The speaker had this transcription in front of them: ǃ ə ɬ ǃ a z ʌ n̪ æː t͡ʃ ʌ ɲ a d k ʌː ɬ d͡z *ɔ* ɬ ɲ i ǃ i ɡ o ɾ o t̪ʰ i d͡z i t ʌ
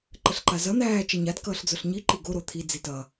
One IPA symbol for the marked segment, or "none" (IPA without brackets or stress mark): ʊ